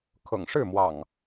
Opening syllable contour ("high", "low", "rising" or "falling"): low